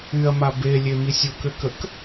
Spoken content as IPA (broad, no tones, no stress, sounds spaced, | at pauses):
y ɐ̯ m a b e lʲ e m i sʲ o k ø k ə k